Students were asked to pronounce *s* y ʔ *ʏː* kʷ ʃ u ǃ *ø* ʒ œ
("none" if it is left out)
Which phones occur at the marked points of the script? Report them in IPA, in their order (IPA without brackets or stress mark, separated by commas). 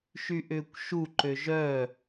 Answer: ʃ, ʏː, ø